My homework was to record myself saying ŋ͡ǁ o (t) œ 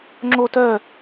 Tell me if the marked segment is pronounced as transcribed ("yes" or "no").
yes